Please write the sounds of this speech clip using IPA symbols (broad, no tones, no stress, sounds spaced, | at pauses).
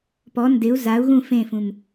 p ɔ n d ɪ u̯ z a u̯ ɣ ũ f ẽ f ũ m